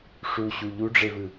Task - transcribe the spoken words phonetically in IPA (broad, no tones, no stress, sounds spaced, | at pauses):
ʂ u ɕ u ʎ u ɖ͡ʐ e v ɯ